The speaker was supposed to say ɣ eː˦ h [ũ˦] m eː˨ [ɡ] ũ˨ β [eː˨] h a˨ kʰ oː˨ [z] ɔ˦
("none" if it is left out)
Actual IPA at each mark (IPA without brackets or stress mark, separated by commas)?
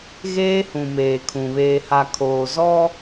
ũ˨, kʰ, eː˨, z